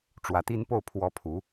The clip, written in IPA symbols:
ʈ͡ʂ w ä˨˩ t̪ i˥ n p o˥˩ ʊ̯ pʰ w ɔ˧˥ pʰ u˨˩˦

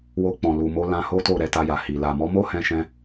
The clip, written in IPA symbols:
w o˧ k͡p ɔ̃˨ l u˨ m o˨˦ l ã˧ h o˦ t o˦˨ ɾ ɛ˧ t a˧ j a˨ h i˨ l a˨ m ɔ˨˦ m o˦ h ɛ̃˦ ʃ ɛ̃˦

